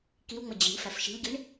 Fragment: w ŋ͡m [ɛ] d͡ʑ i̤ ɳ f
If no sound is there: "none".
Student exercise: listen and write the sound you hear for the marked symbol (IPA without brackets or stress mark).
ə